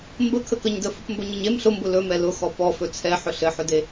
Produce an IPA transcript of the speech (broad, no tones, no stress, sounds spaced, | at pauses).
m b ə kʰ ə k ə ɲ d ə f ʊ p m b ɵ ɲ ə ɲ e m ɬ ʊ m b ʊ l ɵ m ɛ l ʊ x ɔ p ɔ f ɵ t͡sʰ ɛ ħ ɵ ɬ ɘ ħ ʊ d e